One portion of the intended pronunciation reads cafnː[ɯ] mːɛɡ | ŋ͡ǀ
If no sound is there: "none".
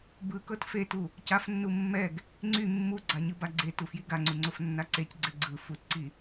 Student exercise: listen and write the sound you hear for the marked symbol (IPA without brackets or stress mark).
u